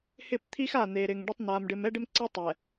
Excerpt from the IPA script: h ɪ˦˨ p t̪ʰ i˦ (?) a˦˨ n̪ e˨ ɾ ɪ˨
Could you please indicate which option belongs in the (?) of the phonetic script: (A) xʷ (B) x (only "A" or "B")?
B